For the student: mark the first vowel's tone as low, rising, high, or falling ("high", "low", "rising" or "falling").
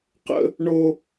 high